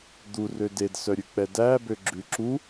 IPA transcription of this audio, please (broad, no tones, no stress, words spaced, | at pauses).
d̪urø dedsœɾʲʉk͡pɛ dæbøɡ͡ǁʉ ǁu